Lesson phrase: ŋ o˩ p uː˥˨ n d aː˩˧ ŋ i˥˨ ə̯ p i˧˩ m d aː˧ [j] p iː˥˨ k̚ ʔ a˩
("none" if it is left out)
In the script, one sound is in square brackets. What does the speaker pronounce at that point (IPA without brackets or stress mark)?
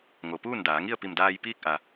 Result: j